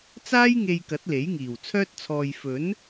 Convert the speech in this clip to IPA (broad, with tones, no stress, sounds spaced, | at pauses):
t͡s aː˥ j ŋ e˧ j k ɐ˨˥ t̚ l e˨˥ j ŋ iː˨˩ w t͡sʰ œː˥ t̚ t͡sʰ ɔː˧ j f ɵ˨˥ n